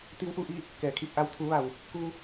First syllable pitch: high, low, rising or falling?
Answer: rising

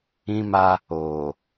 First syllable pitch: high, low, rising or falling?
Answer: high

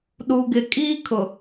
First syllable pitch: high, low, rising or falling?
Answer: low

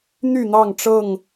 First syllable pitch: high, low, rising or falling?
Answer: falling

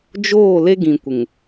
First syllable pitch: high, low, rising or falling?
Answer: falling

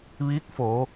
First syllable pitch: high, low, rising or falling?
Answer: rising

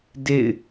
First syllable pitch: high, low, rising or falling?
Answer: falling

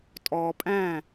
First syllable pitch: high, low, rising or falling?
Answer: low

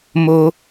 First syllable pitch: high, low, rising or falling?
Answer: low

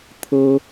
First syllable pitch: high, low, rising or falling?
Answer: high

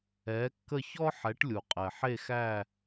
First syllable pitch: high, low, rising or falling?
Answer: rising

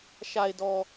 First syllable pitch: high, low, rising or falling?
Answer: low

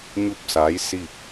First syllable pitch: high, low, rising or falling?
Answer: falling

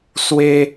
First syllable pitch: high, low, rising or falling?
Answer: high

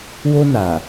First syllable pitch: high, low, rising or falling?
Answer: high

